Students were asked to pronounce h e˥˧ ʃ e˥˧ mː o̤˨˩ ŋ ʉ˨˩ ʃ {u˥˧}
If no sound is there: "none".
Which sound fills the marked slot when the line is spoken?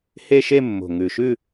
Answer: ʉ˥˧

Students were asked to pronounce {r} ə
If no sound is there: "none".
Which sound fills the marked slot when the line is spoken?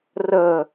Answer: r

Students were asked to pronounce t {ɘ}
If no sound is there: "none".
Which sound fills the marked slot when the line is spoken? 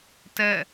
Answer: ɛ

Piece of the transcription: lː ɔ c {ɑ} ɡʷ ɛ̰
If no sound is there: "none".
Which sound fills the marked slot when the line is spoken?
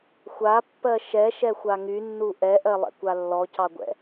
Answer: ɑ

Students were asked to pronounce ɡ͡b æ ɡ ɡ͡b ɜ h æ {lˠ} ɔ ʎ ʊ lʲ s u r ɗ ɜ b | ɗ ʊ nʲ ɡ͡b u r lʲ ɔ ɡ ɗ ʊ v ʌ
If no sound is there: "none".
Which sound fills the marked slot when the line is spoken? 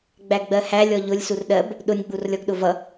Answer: lʲ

